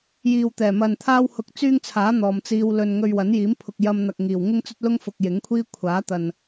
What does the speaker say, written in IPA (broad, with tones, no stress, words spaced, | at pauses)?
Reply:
jiː˨wt̪ɛː˨˩mɐ˨n t̪ʰaː˥whʊ˧k̚t͡syː˥ŋt͡sʰaː˨˥ n̪ɔː˨mt͡siː˧w lɵ˨n ŋɵ˧ɥwɐ˨˥njiː˨˥m pʰʊ˨k̚jɐ˧mn̪ɐ˨k̚ ŋiː˨˩wŋɪ˥ŋt͡sɵ˥t̚lʊ˥ŋ fʊ˨k̚jɪ˨˥ŋkʷʰiː˥ kʷʰaː˨˥t̪ɐ˨n